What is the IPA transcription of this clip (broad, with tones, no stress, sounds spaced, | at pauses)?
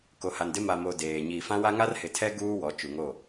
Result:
k o˨ h a˨ n d ɪ˦ m a˨ m o˨ d eː˨ ɲ iː˨ f ã˦ w a˦ ŋ a˦ r h ɪ˨ tʰ ɛ˦ ɡ uː˦ w ɔ˨˦ t͡ʃ u˨ ŋ o˦˨